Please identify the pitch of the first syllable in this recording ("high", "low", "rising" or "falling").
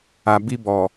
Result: low